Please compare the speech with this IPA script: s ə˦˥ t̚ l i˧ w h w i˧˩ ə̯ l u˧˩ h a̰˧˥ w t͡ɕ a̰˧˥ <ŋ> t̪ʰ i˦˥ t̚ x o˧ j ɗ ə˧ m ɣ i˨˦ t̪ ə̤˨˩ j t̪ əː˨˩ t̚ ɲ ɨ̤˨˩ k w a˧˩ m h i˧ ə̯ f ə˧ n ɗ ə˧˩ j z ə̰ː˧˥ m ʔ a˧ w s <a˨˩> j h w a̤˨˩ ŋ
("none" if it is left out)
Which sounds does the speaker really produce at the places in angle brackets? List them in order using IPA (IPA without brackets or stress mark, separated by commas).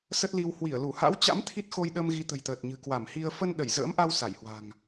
m, a˧˩